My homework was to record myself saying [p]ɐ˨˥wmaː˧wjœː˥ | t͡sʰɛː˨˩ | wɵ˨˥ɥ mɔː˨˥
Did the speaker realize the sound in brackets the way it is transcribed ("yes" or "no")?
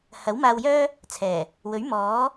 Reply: no